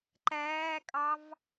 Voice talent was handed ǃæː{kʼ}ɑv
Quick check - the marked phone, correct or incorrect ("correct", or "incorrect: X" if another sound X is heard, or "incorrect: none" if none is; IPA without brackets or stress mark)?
correct